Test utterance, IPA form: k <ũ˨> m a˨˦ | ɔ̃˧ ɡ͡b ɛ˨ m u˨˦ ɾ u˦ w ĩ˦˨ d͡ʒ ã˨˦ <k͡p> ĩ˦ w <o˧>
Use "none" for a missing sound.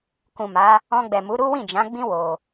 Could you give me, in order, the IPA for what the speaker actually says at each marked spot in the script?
ũ˨, ɡ͡b, o˧

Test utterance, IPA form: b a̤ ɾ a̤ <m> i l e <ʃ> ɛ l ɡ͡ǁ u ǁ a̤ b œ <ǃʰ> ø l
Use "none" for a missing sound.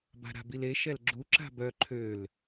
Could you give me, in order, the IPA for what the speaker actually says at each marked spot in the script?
b, ʃ, ǃʰ

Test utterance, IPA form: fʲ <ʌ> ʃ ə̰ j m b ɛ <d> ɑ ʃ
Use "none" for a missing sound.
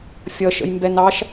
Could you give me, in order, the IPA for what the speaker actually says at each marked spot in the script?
ʌ, n

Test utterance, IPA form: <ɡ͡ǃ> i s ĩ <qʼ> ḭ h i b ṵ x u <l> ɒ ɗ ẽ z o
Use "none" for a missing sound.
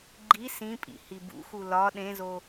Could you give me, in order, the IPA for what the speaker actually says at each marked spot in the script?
ɡ͡ǃ, pʼ, l

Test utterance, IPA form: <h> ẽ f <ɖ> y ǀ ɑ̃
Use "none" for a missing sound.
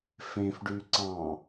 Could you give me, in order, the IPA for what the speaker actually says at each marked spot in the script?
f, ɖ

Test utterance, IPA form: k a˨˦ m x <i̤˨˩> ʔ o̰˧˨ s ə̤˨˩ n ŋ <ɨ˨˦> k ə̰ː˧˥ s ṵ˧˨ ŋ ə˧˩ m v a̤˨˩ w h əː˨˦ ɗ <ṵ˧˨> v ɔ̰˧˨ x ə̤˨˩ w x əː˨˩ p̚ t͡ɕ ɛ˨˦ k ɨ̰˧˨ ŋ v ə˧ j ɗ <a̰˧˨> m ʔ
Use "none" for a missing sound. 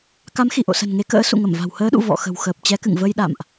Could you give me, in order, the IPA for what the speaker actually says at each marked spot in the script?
i˧˩, e˨˦, ṵ˧˨, a̰˧˨

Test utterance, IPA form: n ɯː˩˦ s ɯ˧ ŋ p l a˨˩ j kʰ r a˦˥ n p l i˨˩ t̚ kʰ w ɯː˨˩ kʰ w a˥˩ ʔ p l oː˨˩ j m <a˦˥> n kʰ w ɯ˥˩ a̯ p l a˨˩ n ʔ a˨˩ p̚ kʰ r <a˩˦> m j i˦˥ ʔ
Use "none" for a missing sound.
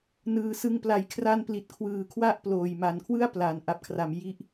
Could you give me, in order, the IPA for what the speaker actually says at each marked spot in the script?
a˨˩, a˩˦

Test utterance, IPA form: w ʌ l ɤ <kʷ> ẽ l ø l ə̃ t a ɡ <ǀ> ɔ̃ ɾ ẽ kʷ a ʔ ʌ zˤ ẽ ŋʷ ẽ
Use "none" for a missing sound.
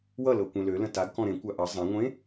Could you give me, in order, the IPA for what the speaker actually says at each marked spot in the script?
kʷ, k

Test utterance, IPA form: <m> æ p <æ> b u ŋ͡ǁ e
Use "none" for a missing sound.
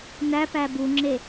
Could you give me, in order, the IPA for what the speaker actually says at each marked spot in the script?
n, æ

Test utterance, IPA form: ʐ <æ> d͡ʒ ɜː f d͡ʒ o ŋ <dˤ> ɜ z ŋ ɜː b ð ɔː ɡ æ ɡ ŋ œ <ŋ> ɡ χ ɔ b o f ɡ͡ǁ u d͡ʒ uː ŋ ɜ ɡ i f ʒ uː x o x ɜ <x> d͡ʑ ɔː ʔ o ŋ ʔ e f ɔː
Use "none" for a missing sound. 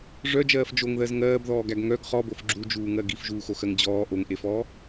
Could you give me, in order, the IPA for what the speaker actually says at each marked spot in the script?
œ, ð, none, ŋ

